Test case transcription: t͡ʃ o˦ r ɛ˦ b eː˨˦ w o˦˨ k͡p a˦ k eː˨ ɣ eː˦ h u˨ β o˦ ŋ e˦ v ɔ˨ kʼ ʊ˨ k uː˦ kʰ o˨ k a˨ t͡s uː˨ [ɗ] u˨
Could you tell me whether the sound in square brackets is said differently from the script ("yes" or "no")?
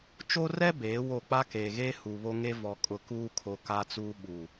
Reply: yes